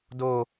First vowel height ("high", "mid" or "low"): mid